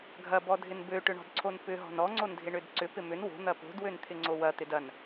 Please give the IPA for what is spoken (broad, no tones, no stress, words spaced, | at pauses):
ɡʱɐbɔdʱɪn bøʈʏɳɔ̤dǀʰon pʏɦɔ̤n ɔŋ͡ǀondʱɪɳød ǀʏpɪ mʏn wo̤n̪ɐ po̤dwønt̪ʰɪŋ͡ǀo wɐt̪ɪd ɐn